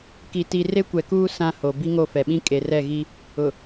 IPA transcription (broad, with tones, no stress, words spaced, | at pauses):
ki˨ti˨ re˦kʷɛ˨kuː˦ sã˦ho˨ bi˦ŋo˦˨fɛ˨ɓĩ˦ kʼe˨rɛ˦˨ɣi˦ | ʊ˨